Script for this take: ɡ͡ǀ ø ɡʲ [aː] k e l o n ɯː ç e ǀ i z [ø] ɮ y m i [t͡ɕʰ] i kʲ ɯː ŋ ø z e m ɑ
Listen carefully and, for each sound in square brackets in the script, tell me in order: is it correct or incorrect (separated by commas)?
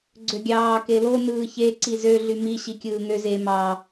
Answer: incorrect, correct, incorrect